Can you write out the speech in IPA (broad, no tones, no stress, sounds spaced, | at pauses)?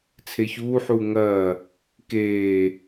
t͡sʰ e ç uː ħ uː ŋ ɐː | k eː